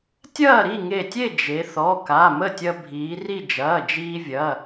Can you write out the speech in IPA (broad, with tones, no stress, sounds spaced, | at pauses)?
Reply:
tʲ ɐː˥˨ ɾ i˥˨ ŋ e˧˩ tʲ e˥˨ d͡ʒ e˩˧ θ ɔ˩˧˩ k a˩˧˩ m ə˥˨ tʲ ɐ˧ bʱ iː˩˧ r i˥˨ d͡ʒ ɐː˩˧˩ d͡ʒ iː˧ vʲ ɐ˩˧˩